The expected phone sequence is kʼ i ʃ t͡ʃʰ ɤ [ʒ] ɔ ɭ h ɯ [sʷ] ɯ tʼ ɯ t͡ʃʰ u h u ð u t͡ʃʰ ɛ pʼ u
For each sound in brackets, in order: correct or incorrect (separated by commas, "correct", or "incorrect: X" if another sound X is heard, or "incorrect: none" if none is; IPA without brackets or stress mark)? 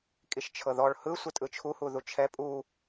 incorrect: ð, correct